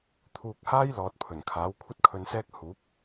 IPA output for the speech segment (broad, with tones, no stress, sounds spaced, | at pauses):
t̪ʰ uː˨ k̚ h aː˥ j l ɔː˨ t̚ pʰ ɵ˨˩ n kʰ aː˨˥ w kʷʰ ɐ˥ t̚ kʰ ɵ˧ n s ɛː˥ k̚ h uː˨˥ p̚